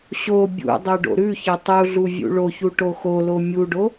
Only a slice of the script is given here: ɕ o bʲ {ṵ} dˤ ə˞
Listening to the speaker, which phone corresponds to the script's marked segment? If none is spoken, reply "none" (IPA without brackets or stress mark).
ṵ